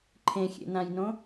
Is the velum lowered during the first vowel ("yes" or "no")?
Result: yes